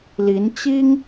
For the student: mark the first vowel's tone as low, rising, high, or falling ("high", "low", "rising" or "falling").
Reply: rising